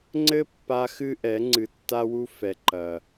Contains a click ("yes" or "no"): yes